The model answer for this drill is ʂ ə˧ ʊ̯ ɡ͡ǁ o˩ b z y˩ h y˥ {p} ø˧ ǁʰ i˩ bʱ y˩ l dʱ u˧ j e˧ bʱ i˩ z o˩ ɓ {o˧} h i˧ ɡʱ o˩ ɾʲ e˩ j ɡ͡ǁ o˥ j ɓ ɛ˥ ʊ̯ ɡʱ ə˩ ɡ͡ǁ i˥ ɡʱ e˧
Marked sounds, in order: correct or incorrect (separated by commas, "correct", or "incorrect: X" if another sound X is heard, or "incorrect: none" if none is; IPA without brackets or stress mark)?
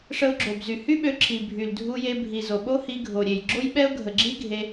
incorrect: ɓ, incorrect: o˥